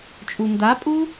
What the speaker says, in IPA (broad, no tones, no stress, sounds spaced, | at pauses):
t͡ʃʼ u n d a pʼ u